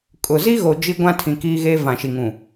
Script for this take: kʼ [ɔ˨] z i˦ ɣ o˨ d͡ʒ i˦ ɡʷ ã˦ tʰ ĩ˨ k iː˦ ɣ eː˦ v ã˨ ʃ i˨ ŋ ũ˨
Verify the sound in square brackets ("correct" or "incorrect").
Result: incorrect